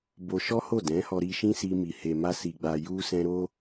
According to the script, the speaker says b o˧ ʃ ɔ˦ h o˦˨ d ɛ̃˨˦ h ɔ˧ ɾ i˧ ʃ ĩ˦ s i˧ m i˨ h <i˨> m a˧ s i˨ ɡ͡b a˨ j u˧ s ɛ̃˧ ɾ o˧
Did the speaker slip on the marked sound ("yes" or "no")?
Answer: yes